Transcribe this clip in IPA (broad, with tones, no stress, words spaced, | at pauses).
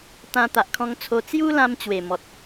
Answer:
t̪ã˧t̪a˨ʔkʰɔ̃˧ŋt͡sʰo˧ t͡sju˦lã˧m t͡ɕwe˨˩mɔ˨t̚